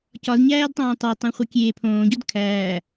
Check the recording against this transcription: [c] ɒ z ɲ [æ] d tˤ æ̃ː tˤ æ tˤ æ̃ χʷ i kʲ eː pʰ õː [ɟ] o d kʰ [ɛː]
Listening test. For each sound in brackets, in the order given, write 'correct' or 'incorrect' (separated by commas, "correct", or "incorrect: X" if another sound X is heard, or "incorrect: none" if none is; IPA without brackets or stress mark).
correct, incorrect: æː, correct, incorrect: æː